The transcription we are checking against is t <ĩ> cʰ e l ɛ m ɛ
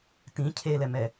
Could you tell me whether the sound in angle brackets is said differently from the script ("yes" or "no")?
no